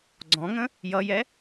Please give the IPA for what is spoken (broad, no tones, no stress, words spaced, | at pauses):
ɡ͡ǀɔ̃ŋə̃ | jʌjɛ